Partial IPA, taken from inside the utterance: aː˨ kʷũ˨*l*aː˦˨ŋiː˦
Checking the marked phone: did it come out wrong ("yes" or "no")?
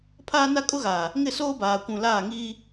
no